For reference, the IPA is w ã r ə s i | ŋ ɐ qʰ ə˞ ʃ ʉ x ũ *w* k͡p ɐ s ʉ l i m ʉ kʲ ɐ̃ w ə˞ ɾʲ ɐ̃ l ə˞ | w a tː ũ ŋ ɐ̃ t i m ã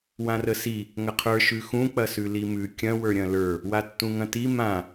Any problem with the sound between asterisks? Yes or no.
yes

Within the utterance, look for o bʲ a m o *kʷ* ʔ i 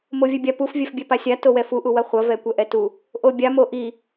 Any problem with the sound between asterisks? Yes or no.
yes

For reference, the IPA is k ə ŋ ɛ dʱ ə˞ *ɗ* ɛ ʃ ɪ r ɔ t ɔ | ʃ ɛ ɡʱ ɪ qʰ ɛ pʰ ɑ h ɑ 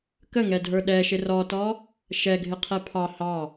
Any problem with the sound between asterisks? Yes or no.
no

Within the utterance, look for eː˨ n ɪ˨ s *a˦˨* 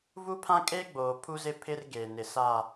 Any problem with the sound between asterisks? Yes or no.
no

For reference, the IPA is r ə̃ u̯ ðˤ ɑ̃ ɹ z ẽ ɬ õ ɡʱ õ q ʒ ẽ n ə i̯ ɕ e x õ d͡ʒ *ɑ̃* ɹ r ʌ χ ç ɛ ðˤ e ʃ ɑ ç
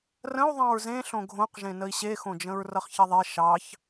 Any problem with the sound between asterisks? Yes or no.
yes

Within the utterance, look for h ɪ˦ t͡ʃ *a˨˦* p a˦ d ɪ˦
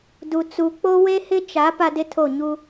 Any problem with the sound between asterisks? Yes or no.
no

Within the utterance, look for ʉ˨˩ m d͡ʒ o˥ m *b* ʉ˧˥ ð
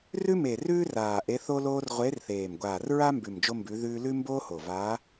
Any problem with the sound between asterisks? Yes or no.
no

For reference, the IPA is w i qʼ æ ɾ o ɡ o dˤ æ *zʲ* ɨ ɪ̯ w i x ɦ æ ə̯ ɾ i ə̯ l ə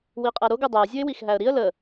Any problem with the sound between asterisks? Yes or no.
no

